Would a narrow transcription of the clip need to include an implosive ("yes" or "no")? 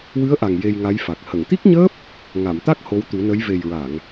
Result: no